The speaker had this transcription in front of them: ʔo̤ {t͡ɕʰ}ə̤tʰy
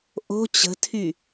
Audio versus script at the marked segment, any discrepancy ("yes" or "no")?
yes